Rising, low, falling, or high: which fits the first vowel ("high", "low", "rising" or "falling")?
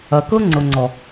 low